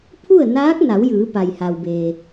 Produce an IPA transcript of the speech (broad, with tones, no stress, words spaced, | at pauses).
pʰu˥˨ə̯naː˧˥k̚na˩˧w jɯː˩˧pa˩jha˩wbe˩